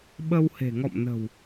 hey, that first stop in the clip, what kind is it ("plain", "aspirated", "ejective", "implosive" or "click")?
implosive